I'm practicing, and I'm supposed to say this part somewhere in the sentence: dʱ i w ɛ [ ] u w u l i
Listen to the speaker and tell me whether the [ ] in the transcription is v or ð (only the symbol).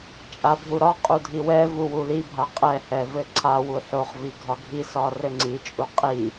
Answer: v